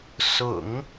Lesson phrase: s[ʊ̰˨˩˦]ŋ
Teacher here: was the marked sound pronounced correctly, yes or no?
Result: yes